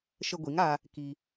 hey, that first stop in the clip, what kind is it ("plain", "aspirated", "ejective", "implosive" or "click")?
plain